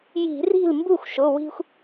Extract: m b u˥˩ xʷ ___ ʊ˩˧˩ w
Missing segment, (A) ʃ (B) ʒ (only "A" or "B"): A